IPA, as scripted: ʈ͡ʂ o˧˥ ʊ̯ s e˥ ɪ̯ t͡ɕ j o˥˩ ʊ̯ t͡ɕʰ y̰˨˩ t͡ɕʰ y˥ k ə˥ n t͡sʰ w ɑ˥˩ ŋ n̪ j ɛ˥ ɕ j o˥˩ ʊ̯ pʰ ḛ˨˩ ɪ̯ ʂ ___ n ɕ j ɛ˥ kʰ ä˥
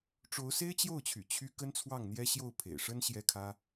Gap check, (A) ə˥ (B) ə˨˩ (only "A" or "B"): A